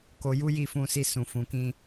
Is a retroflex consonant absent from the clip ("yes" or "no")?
yes